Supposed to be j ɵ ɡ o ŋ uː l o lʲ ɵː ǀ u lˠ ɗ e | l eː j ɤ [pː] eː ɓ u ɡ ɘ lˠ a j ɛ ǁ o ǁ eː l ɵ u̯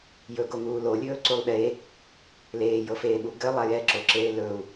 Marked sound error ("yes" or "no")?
yes